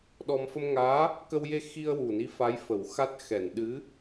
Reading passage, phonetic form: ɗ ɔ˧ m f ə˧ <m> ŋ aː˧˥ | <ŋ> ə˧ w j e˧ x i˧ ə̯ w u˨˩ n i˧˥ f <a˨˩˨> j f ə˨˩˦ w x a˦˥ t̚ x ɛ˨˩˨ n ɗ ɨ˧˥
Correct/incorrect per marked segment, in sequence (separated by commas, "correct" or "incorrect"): correct, incorrect, incorrect